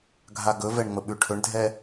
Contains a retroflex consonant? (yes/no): yes